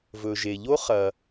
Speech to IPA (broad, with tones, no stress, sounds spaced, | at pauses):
v ɵ˩ ʒ e˩ ʎ o˥ χ ɐ˩